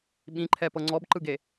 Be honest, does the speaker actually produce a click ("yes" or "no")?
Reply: yes